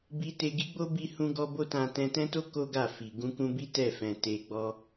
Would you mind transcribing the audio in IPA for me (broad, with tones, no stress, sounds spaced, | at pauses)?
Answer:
b i˧ t e˧ ɡ i˦ ɡ͡b o˦ b i˧ h ũ˧ ɡ ɔ˧ b o˦ t ã˧ t ɛ̃˧ t ɛ̃˦ t o˦ k o˦ ɡ a˦˨ f i˨ ɡ ũ˧ k ũ˧ b i˦ t ɛ˦˨ f ɛ̃˨ t e˧ ɡ͡b ɔ˦